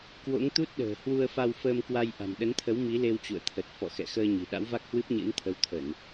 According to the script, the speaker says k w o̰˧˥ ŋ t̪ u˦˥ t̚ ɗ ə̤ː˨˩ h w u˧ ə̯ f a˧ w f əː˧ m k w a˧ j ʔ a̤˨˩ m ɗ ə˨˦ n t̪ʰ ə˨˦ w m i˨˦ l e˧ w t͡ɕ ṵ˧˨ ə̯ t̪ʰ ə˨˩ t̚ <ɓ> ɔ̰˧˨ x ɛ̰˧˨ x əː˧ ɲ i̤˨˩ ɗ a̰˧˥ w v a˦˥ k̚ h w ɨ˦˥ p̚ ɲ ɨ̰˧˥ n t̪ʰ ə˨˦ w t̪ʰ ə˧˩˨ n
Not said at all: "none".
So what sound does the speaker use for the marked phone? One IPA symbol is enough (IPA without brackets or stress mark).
f